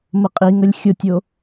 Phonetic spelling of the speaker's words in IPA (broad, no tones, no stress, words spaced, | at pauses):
məqʼiŋəlʲ xʲʊtʲo